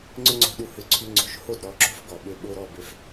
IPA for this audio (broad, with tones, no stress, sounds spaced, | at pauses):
ŋ͡ǀ ʏ˥ ŋ͡ǀ o̤˧ ɗ u˧ h ʏ˧ ǀʰ y˧ ŋ͡ǀ o̤˩˥ ʃ h o˥˩ d ɾ ɔ˩˥ ǁ o̤˥ f ɡ ɔ˩ ɓ ø˧ ɓ o˧ ɾ ɔ˥˩ b ø˧ f